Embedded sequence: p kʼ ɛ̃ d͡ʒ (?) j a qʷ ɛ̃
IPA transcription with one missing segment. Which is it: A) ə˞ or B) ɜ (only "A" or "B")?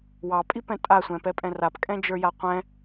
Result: A